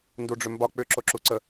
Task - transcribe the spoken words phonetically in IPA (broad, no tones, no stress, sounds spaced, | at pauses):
n d u ɖ͡ʐ ʏ m b ɒ k͡p ʏ ǁ o ǁ u ǀ ə